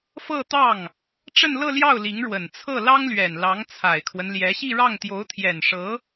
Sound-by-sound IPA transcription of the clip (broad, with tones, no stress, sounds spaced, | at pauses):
f ɤ˥˧ t̪ ɑ˥˩ ŋ | ʈ͡ʂ ə˥˧ n l ɤ˥˧ l j ɑ˥˩ ʊ̯ l i˧˥ ŋ ɻ w ə˨˩ n t͡sʰ ɤ˥˩ l ɑ˥ ŋ l ɥ ɛ˨˩ n l ɑ˧˥ ŋ t͡sʰ a˨˩ ɪ̯ kʰ w ə˦ n l j ɛ˧˥ ɕ i˥˧ ɻ ɑ˥˩ ŋ t̪ j o˧˥ ʊ̯ t̪ʰ j ɛ˨˩ n ʂ ɤ˧˥